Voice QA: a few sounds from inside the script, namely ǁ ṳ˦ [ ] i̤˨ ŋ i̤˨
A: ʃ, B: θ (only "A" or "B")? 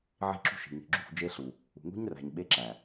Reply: A